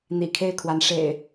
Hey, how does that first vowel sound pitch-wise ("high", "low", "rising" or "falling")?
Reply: low